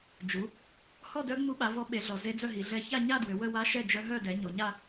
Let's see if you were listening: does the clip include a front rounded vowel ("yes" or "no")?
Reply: yes